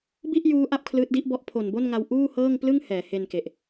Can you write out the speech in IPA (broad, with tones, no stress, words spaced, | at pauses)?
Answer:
bi˥˩ʔjuː˦˥ ʔa˥˩p̚kʰlɯː˦˥t̚di˦˥ʔbɔ˦˥ʔ pʰo˨˩nbo˥˩nŋa˧w ʔuː˥˩hɤː˥˩ŋ plɯ˥˩ŋ hɛː˩˦he˧nke˨˩ʔ